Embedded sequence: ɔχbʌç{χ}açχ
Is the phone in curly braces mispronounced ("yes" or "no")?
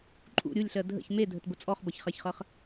no